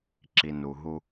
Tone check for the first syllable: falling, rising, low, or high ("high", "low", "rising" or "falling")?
low